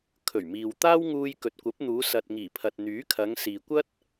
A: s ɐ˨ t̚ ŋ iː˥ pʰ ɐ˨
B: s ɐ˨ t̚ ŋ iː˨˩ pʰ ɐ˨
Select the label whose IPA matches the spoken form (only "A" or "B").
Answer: B